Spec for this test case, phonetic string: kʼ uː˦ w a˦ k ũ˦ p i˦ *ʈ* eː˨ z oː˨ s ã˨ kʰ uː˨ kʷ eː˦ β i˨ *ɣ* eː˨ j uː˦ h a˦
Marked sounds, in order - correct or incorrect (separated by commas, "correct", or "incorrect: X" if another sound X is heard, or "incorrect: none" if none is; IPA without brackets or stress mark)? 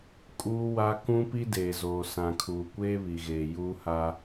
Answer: incorrect: d, correct